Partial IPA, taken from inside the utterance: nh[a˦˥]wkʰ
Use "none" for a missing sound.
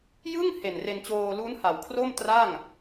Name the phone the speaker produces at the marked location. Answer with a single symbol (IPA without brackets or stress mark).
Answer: a˩˦